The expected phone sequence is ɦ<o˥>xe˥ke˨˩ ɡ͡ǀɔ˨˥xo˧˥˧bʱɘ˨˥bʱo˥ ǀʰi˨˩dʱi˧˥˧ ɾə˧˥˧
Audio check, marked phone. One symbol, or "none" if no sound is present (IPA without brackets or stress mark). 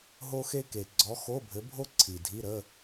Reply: o˥